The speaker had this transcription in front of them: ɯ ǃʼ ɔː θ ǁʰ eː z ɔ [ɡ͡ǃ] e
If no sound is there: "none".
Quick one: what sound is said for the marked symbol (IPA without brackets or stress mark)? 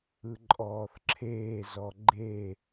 ɡ͡ǃ